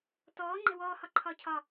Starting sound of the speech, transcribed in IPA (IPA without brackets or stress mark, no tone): t